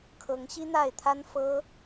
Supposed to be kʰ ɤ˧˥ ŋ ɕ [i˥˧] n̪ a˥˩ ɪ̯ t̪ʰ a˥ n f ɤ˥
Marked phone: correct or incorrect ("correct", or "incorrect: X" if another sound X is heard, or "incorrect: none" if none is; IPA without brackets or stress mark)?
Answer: incorrect: i˥